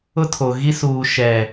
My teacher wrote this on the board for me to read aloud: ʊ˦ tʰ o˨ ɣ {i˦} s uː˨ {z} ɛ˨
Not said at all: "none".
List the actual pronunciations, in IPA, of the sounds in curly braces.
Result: i˦, ʃ

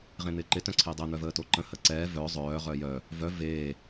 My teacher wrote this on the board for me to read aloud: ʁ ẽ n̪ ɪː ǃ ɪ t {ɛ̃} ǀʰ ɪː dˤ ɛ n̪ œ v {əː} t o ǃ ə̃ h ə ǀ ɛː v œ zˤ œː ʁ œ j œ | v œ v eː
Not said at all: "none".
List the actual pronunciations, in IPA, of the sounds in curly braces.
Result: œ̃, əː

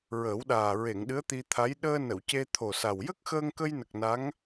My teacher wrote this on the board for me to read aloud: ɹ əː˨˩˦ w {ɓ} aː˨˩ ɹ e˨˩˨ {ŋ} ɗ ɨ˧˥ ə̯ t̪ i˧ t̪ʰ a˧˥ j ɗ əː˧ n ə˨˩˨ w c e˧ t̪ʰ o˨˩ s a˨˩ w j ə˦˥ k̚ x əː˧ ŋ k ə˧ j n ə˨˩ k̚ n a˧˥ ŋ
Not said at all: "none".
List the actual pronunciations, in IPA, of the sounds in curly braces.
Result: ɗ, ŋ

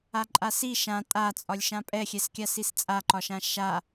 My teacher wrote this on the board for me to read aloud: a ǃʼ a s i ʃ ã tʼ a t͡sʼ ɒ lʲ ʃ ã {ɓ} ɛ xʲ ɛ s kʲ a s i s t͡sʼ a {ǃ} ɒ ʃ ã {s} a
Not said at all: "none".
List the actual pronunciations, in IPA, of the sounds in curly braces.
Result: pʼ, ǃ, ʃ

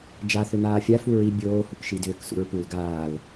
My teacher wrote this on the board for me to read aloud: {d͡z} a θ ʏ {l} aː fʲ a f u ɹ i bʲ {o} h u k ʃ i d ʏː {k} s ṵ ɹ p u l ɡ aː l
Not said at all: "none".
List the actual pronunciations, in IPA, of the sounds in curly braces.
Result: d͡ʒ, n̪, oː, k

